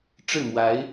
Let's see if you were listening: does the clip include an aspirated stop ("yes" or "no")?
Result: no